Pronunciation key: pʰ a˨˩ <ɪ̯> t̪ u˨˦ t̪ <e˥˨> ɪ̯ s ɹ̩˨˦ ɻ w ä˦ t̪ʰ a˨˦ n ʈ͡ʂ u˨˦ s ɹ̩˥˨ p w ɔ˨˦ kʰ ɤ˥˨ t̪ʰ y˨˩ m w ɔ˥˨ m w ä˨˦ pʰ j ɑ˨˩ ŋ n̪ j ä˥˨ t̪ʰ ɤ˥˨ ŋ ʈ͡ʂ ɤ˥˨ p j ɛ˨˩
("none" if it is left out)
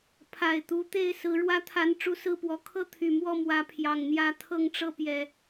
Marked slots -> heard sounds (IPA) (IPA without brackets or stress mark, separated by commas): ɪ̯, e˥˨